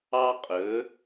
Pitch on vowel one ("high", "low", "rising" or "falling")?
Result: high